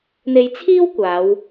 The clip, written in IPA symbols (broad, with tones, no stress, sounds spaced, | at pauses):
n̪ e˨ j t͡sʰ iː˥ w kʷ aː˨˧ w